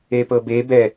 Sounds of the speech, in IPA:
epɤbebɛ

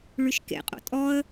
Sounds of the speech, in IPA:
ɭyʃkḛqʼo̰ tʼɔə̯

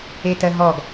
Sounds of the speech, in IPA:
etɜɦɔɡ

